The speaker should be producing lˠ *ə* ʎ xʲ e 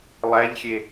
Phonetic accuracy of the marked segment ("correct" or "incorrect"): incorrect